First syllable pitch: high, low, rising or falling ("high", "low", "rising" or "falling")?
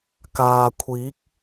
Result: low